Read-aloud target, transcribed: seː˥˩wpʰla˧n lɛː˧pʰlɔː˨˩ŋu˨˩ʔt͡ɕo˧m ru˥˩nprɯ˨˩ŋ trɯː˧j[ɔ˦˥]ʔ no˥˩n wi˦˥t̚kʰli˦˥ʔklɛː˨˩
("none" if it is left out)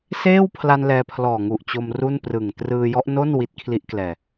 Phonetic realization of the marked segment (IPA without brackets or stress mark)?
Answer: ɔ˦˥